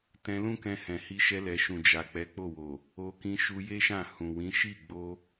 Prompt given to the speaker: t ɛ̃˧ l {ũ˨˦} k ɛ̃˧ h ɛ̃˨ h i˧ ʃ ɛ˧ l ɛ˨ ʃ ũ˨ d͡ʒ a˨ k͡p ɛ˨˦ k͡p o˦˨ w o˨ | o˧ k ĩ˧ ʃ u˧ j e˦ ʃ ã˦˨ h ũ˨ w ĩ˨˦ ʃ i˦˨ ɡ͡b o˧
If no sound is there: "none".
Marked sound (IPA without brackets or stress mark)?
ũ˦